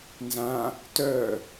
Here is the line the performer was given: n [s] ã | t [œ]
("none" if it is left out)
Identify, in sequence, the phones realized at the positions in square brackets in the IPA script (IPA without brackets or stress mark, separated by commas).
z, œ